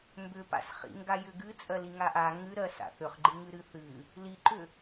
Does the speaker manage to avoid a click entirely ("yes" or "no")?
no